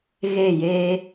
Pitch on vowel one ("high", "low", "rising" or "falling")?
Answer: falling